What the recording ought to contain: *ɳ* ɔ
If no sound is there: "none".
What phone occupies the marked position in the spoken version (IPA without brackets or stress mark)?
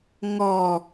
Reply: ŋ